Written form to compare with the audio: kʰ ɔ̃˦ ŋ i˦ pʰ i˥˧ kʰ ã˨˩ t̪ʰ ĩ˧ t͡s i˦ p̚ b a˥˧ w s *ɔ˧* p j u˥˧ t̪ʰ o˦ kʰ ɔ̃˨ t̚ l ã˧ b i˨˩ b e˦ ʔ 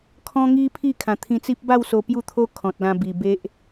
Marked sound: incorrect: o˧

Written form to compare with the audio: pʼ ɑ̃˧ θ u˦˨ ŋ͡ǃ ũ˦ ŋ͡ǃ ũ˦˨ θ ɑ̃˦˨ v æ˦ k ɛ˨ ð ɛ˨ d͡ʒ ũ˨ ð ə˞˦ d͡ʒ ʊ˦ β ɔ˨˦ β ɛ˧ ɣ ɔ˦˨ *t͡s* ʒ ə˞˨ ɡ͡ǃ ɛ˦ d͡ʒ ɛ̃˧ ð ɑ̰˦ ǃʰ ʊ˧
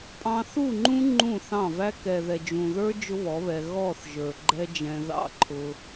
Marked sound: incorrect: θ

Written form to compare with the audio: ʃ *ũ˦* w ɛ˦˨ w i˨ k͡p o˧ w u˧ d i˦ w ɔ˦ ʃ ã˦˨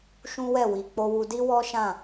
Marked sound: correct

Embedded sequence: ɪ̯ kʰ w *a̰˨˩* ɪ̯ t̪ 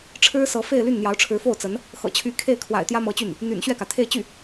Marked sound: correct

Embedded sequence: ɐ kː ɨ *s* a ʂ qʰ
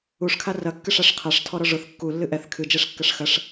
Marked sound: incorrect: ʂ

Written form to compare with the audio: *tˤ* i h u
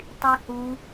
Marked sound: correct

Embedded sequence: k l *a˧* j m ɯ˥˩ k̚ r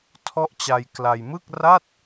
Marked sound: correct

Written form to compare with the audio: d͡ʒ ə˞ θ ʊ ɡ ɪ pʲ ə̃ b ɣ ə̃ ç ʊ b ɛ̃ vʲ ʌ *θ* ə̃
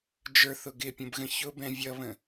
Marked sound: incorrect: β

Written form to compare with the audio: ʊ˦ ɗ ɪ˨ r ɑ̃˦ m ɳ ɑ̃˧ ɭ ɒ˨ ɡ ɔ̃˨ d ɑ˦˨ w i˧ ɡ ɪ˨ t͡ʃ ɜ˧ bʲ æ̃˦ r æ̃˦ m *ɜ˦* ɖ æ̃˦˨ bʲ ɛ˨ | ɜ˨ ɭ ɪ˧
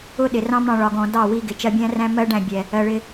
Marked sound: correct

